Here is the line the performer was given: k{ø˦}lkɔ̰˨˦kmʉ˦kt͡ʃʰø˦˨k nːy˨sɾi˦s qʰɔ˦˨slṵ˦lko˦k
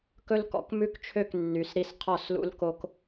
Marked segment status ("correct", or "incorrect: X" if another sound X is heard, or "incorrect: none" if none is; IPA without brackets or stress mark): incorrect: ɵ˦